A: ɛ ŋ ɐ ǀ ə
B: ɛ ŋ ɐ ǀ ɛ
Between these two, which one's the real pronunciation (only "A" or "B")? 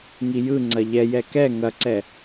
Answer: B